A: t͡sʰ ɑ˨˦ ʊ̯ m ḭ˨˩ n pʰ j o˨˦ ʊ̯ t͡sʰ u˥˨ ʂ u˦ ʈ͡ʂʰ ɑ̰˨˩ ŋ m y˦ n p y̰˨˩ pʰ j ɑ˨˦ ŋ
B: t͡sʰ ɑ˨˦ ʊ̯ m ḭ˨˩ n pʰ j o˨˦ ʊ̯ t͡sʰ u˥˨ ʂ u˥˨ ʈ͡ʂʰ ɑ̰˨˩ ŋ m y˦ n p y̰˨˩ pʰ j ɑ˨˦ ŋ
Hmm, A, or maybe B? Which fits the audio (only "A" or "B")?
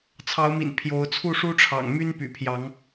A